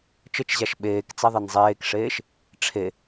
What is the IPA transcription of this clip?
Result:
t͡ʃ ə t͡ʃ ʑ a ʃ ɓ eː k t͡s ɛ ðˤ e n zˤ eː k ʂ eː ʃ | ʈ͡ʂʰ e

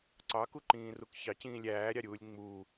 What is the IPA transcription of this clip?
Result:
ǀ ɑ k u ǃ ĩː r u k ç ɑ c ĩː lʲ æː ɾʲ ɑ ɾʲ uː lʲ ŋ͡m u

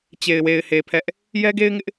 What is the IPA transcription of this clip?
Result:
t͡ɕ e˨ ɪ̯ w e˨ ɪ̯ h e˨ pʰ ɛ˦ ʔ | j ɛ˦ ɡ e˦ ɪ̯ ŋ ɪ˦ ʔ

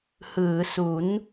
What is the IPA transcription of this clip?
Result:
h ɯː˩˦ s u˩˦ n

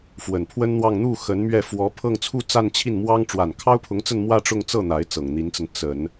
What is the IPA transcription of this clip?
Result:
f w ə˨˩ n pʰ w ə˥ n n̪ w ɑ˥˧ ŋ n̪ u˥˩ x ə˧˥ n m ɥ ɛ˥˩ f w ɔ˧˥ pʰ ɤ˥˧ ŋ t͡sʰ u˥˧ t͡s a˥˧ n t͡ɕʰ i˥˩ n m w ɑ˥ ŋ ʈ͡ʂ w a˨˩ n kʰ ɑ˥ ʊ̯ pʰ ʊ˧˥ ŋ t͡s ə˥˧ n m w ä˥˧ ʈ͡ʂ ʊ˥˧ ŋ t͡s ɤ˥˩ n̪ a˧˥ ɪ̯ t͡s ɤ˨˩ ŋ n̪ i˧˥ n t͡s ə˧ n t͡s ə˨˩˦ n

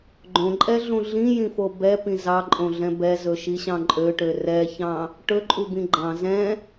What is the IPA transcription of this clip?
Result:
ɡ͡ǃ õ ǃʼ ɛ ɮ ũ ɮ ĩ j ĩ f o b ɛ p ĩ z ɑ ǃʼ õ ɮ ɛ̃ b ɛ z ɵ ʃ i ɕ ɑ̃ ǃʼ ø ʈ ø r ɛ ç ɑ̃ | ʈ ɵ ǃʼ u b ĩ ɡ͡ǃ ɑ̃ z ɛ̃

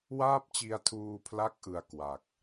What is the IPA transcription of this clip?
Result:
w aː˥˩ p̚ t͡ɕ i˧ a̯ tʰ uː˧ pʰ l a˦˥ k̚ ʔ ɯ˧ a̯ k w a˨˩ k̚

